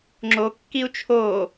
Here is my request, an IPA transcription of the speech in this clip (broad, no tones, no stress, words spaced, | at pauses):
ŋ͡ǁokːiu̯ t͡ʃʰo